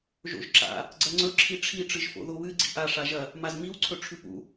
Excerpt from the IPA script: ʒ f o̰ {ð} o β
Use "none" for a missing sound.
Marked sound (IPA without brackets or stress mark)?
ð